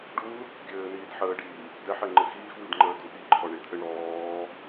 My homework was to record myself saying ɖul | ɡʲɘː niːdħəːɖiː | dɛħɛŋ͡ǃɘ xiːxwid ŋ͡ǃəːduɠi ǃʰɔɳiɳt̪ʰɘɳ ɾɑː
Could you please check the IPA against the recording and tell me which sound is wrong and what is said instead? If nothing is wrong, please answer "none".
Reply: ɑː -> ɔː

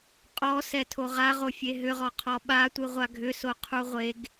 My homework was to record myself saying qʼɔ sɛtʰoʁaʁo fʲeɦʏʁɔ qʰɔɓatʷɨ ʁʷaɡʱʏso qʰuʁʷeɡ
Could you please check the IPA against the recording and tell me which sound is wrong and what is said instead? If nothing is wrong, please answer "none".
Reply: none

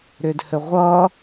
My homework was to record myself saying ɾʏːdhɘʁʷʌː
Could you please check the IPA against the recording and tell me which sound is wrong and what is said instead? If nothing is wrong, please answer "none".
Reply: none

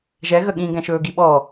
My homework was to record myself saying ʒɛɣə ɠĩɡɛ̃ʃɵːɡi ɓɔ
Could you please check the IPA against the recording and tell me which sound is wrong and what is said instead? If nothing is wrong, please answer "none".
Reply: none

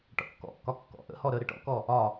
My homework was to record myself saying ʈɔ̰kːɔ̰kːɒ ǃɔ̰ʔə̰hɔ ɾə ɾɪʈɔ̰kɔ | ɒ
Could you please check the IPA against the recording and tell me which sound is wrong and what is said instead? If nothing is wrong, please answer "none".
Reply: ǃ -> kː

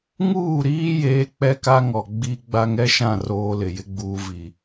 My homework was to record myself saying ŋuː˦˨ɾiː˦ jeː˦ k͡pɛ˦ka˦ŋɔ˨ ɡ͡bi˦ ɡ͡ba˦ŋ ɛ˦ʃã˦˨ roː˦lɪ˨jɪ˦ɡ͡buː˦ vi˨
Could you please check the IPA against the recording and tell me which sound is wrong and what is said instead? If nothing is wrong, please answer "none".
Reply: none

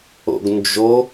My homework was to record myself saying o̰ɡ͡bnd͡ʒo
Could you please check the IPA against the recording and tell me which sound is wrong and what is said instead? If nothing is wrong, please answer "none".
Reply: ɡ͡b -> ɡ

